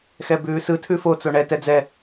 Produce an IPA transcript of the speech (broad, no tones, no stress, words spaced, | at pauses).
xɛbʉːsɯ tʰʉfo t͡soɳɛ tɛd͡zɛ